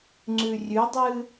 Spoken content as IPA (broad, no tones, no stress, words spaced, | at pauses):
ŋ͡ǀʉrʲʉdˤɨ